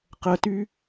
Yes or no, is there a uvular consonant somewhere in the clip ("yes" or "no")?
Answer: yes